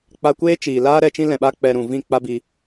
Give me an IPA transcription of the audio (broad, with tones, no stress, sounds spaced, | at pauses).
k͡p a˧ kʷ eː˦ t͡ʃ iː˨ l aː˦ ɾ ɛ˧ t͡ʃ ĩ˦ l ɛ̃˨ ɓ a˧ k͡p ɛ˨ ɾ ũ˨ v ĩ˦˨ k͡p a˦ b i˧